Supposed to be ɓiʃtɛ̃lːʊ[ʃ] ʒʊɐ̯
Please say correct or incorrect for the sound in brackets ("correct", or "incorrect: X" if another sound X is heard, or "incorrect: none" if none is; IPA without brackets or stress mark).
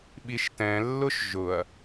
correct